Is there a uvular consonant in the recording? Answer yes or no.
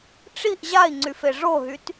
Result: no